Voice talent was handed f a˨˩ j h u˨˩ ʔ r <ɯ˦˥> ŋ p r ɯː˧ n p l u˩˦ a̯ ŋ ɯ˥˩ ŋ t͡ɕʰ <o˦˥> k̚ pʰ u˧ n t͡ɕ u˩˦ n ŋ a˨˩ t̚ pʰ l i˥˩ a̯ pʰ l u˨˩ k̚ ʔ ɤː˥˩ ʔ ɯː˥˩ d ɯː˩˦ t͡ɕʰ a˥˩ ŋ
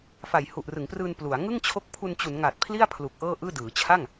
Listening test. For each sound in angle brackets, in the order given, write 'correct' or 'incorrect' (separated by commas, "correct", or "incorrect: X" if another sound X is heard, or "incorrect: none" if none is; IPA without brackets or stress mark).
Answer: incorrect: ɯ˩˦, correct